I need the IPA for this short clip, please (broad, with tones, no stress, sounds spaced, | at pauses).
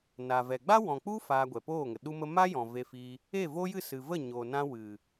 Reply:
n a˨ v ɛ˨ ɡ͡b a˦ w ɔ̃˨ k͡p u˦ f aː˧ ɡʷ ɛ˨ p oː˦˨ ŋ ə˨ ɗ u˦ m ə˦ m a˦ j ɔ̃˨ v e˧ f i˧ | e˦˨ v o˦ j ɨ˦˨ s ɨ˨ v ə˦˨ ɲ o˨ n ã˧ w ɨ˨